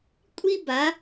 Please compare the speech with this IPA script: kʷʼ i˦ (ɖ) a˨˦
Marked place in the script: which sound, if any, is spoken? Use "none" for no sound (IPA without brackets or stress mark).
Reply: b